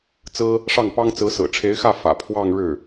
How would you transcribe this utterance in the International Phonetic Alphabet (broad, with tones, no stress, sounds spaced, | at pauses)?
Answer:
t͡s ɹ̩˥ | ʂ ɑ˥˩ ŋ p ɑ˥ ŋ t͡s ɹ̩˧˥ s ɹ̩˨˩ ʈ͡ʂʰ e˧˥ ɪ̯ x ä˥˩ f ä̰˨˩ pʰ w ɑ˥˧ ŋ ɻ ɻ̩˥˩